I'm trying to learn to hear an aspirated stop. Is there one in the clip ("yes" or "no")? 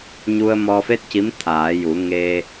yes